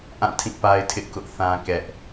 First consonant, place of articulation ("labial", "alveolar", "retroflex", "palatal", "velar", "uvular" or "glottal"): glottal